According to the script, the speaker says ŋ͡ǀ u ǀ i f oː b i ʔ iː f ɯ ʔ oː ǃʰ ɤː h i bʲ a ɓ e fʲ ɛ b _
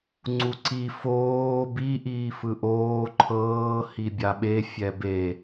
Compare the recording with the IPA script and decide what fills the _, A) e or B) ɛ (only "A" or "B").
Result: A